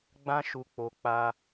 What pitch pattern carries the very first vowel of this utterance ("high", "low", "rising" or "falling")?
high